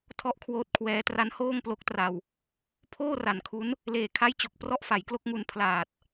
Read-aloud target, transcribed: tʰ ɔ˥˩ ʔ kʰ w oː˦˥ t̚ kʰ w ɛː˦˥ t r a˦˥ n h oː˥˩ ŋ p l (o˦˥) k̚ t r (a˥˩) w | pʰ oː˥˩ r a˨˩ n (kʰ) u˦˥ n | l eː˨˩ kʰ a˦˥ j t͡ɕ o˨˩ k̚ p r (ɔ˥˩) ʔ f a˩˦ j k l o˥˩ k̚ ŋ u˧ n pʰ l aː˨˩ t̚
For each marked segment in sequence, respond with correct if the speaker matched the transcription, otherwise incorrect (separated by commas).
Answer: correct, incorrect, correct, correct